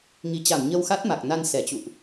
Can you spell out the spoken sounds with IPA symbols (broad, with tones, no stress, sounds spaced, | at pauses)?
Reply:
ŋ i˨˩ t͡ɕ a˧˩ m ɲ ə˧ w x a˦˥ t̚ m a˨˩ k̚ n a˧ n s ɛ˧˩ t͡ɕ ṵ˧˨ ʔ